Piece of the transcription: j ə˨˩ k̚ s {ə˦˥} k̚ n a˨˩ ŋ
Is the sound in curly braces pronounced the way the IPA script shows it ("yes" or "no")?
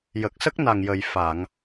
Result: yes